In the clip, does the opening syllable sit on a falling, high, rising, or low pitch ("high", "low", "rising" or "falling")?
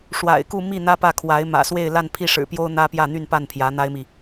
low